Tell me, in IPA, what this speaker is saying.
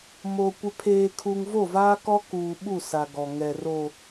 m o˨ kʷ ɪ˨ pʰ eː˨ kʰ u˨ ŋ v o˦˨ v aː˦ k ɔ˦ k uː˨ ɓ u˦˨ s a˨ ɡ ɔ˨ ŋ ɛ˨ r o˨

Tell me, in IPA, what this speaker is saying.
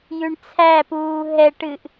j ʉ ɳ t͡sʰ æ p uː ɦ ɛ ʈ ɨ ʔ

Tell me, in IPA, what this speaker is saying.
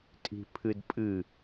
tʼ i̤ pʰ ɨ d pʼ ɨ

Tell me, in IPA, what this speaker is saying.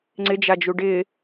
ŋ͡ǀ ɪ d͡ʒ a d͡ʒ u ɖ ɪ

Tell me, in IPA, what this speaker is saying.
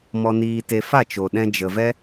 m ɔ˧ n iː˧ t e˧ f a˦˨ t͡ʃ o˨ ɗ ɛ̃˧ d͡ʒ ə˨ v ɛ˦

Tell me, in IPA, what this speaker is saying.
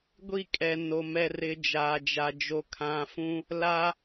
ɡʷ i˦˨ kʼ ɛ˨ n o˨ m ɛ˨ r ɪ˨ d͡ʒ aː˨ d͡ʒ a˨ d͡ʒ o˨ kʰ ã˨ f ũ˦ | l a˦

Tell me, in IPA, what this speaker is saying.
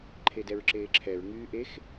ǃʰ e d ɛ ɹ ǁ eː ǁʰ ɛ ɹ ŋ yː ʔ e x

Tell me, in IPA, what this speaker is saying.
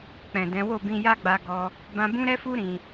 k͡p ɛ̃˨ d ɛ̃˨˦ w o˦˨ b ĩ˧ j a˦ ɡ͡b a˧ ɡ ɔ˧ | b ã˧ b ũ˦ ɾ ɛ˦ f u˦ ɾ ĩ˧

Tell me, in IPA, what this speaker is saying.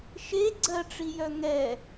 ʃ e ɡ͡ǀ ɜ ʈ͡ʂ i j œ ŋ ɛ

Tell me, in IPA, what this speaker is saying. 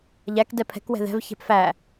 ʎ æ k d ɛ pʰ ɛ̤ k w ɛ̤ ð ɛ̤ v ç ɛ̤ p f æ

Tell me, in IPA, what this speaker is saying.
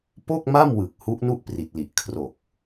p o˥˩ k̚ m a˥˩ m w ɯ˨˩ k̚ h u˦˥ ʔ n u˥˩ ʔ p r i˨˩ t̚ l i˨˩ ʔ kʰ r o˨˩ k̚

